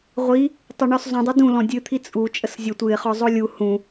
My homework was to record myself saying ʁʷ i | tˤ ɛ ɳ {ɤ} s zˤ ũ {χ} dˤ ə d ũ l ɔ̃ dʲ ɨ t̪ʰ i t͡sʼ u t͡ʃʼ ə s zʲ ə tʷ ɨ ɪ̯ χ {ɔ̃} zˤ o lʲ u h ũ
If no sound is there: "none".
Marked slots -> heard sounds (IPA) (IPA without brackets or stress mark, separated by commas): ɔ, none, ɔ